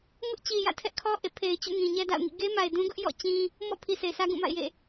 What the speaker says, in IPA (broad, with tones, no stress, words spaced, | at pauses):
ŋʊ˦ʔt͡ɕi˨jä̰˦˨ tʰɛ˦ʔkʰɔ˦ ʔḛ˦˨pʰe˨ɪ̯t͡ɕṵ˦˨ ŋĩ˨ɲɛ˦da̰˦˨ʊ̯ŋḭ˦˨ ɡe˦ma˨ɪ̯dũ˦ɡʊ˦ʔ jɔ̰˦˨t͡ɕĩ˦ | mɔ̰˦˨pʰi˨ se˨ɪ̯sä˦ɡũ˦˨ma̰˦˨ɪ̯ jḛ˦˨